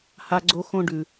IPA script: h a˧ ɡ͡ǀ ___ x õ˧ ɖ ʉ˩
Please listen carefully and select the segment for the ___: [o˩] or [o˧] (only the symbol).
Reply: o˧